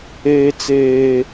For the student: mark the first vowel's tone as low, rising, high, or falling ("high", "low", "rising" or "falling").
high